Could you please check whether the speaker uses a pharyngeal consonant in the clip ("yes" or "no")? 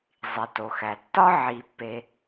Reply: yes